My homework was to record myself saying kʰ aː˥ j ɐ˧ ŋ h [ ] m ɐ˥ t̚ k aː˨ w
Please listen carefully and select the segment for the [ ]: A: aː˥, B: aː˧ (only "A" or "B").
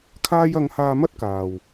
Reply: B